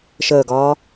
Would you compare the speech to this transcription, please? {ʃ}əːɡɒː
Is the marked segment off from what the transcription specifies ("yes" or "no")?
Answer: no